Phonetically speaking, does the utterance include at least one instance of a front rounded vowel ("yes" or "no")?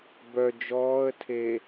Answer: yes